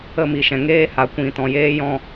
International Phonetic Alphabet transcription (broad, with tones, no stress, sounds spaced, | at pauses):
ə˦˨ m i˨ ʃ ɛ̃˨ ŋ eː˦ h a˨ kʷ ĩ˨ t ɔ̃˨ j eː˦ j ɔ̃˦˨